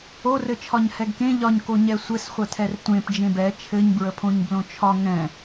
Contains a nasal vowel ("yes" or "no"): yes